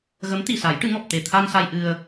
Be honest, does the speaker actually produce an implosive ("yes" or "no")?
no